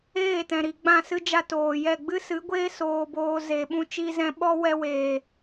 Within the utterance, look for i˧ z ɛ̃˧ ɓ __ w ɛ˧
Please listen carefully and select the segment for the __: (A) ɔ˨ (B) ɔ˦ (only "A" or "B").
B